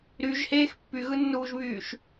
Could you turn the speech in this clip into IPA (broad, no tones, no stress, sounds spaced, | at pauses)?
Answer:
ɾ y ʒ h eː x pː y ɣ ɯ nː uː ʒ β yː ʃ